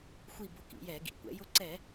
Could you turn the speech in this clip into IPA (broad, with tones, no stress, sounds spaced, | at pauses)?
xʷ i˧˩ b ʊ˧˩˧ k ḭ˧˩˧ j ɛ˧˩˧ ɡ ḭ˩˥ kʷ ɛ̰˩˥ j ʊ˧ ǀ ɛ˧˩˧